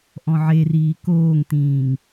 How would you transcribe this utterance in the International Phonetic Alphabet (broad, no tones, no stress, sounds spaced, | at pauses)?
ʔ ɔ̃ ʕ e r iː k oː ŋ t ĩː ŋ